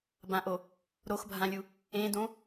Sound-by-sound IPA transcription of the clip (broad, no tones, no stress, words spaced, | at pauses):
bãʔo | ɾoxbʱãlʲu | ẽdõ